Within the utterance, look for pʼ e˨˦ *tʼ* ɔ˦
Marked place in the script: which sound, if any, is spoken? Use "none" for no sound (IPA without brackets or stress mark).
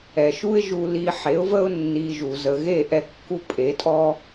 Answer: tʼ